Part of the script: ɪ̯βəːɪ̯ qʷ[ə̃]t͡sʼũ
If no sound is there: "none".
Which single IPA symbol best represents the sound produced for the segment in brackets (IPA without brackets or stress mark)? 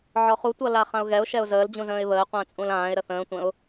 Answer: ə̃ː